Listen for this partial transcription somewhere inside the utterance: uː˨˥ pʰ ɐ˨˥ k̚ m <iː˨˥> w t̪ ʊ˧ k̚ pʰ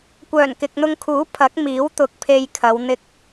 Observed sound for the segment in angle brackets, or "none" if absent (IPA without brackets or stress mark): iː˨˥